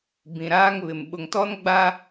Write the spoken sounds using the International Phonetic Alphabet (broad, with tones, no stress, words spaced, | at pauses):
bĩ˨ɾaː˦ŋβɪ˨m ɓʊ˨ŋtɔ˦nɡ͡ba˦